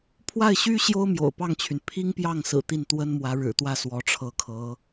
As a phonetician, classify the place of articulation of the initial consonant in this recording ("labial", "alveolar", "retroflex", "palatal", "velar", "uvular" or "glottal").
labial